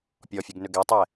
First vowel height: mid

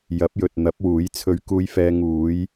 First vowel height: low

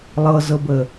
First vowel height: mid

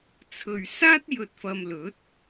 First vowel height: mid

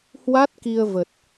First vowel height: low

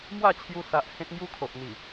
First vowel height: low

